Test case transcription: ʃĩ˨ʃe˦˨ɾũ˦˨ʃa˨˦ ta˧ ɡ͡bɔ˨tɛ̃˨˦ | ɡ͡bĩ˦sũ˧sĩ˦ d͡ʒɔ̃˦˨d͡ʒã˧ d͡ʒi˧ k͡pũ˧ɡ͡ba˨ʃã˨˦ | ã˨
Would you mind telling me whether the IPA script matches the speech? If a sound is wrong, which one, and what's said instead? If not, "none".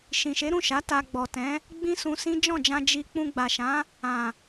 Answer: e˦˨ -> e˨˦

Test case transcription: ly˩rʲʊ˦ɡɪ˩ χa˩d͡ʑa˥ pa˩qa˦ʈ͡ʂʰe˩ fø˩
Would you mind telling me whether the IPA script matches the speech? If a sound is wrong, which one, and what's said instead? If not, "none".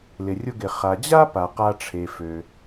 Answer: y˩ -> ɪ˩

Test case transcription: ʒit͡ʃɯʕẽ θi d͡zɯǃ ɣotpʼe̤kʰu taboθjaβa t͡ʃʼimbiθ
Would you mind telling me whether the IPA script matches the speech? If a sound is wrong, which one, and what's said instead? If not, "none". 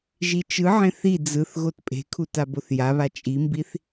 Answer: ǃ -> θ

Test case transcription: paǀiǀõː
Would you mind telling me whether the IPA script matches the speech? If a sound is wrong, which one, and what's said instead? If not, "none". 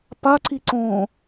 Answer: none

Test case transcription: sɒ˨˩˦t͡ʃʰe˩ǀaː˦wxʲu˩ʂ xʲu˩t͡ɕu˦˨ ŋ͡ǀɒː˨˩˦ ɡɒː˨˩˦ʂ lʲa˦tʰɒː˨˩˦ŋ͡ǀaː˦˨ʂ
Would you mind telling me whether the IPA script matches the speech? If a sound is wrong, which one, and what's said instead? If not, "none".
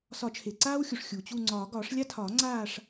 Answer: none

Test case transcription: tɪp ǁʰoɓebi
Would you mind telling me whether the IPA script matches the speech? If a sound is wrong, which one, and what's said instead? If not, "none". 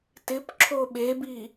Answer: none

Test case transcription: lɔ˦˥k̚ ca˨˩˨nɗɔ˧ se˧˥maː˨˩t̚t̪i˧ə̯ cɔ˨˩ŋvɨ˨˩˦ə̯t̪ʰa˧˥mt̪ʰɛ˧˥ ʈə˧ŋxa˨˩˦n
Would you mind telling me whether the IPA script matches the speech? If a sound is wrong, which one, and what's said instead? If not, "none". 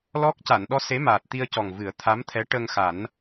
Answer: none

